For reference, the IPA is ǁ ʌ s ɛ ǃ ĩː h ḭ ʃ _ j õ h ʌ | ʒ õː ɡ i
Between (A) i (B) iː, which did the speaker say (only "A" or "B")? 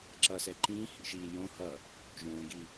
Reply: B